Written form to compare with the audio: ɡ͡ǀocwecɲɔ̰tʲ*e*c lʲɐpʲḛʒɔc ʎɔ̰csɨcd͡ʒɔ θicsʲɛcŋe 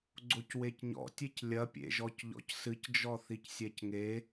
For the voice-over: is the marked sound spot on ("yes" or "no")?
yes